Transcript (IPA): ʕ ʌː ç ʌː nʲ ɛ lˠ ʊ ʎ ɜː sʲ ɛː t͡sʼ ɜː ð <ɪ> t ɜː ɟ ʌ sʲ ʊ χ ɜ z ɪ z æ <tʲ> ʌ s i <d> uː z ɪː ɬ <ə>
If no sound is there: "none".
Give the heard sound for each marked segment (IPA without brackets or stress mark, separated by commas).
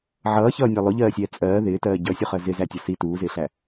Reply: ɪː, tʲ, t, æ